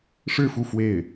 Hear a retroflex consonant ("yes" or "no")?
yes